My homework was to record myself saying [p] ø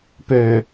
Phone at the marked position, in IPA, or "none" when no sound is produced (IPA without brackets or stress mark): p